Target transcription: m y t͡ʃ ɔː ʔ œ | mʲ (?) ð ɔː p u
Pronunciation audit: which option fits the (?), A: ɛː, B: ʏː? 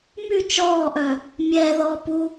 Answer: A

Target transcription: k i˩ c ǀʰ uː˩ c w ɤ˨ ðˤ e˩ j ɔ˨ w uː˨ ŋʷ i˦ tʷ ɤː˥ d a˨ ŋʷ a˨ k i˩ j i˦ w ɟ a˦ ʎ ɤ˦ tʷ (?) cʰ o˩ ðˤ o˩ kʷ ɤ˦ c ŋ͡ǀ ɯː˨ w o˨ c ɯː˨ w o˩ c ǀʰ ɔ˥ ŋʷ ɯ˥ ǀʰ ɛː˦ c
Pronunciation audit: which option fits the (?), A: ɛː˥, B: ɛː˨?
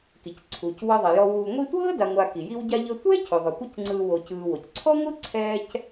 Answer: A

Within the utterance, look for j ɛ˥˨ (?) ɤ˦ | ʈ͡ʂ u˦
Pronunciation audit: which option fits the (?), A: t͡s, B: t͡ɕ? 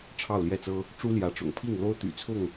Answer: A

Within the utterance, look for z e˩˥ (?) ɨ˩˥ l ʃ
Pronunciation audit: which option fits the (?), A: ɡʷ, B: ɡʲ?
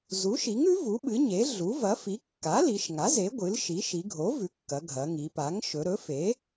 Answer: A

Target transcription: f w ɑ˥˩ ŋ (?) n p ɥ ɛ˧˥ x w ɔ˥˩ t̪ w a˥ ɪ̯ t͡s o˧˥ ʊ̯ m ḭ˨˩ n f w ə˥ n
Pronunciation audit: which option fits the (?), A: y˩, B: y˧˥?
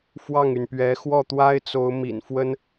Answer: A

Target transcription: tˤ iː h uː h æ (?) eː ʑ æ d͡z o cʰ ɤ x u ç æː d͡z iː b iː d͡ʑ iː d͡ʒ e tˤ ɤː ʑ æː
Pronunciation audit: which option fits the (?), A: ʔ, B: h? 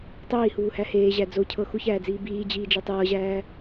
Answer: B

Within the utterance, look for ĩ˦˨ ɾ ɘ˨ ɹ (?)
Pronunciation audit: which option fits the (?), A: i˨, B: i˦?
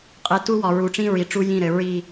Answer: A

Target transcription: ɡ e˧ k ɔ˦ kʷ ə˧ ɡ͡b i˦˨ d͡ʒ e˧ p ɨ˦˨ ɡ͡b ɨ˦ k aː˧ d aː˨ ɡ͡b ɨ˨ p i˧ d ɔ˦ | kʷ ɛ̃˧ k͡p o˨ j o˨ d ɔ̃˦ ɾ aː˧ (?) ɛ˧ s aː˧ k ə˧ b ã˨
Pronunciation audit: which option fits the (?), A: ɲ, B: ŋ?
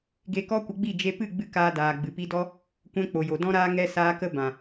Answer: B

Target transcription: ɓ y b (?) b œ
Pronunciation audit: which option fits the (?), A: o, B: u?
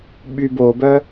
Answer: A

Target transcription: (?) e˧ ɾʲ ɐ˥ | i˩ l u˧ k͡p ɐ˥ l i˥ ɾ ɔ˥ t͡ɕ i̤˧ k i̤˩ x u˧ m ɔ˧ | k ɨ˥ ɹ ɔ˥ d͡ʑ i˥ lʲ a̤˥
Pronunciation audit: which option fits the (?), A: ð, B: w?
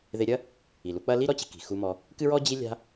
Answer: A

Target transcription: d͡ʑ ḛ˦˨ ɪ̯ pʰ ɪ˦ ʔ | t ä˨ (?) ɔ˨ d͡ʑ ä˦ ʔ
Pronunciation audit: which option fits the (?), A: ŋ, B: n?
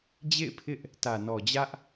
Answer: B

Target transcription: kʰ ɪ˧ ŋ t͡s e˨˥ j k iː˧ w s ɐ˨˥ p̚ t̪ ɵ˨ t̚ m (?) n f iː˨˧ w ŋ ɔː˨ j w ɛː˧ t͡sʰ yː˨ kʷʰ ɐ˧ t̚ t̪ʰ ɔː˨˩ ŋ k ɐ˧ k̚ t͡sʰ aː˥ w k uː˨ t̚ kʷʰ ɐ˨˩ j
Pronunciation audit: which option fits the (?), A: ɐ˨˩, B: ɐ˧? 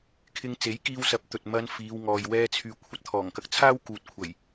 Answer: B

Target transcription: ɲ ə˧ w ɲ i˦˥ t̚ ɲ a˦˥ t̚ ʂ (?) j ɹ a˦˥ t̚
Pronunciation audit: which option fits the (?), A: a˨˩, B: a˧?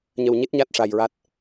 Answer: B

